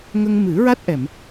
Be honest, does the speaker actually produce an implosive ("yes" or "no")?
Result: no